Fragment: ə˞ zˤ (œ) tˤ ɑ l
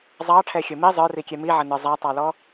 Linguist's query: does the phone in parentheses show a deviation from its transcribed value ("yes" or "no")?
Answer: yes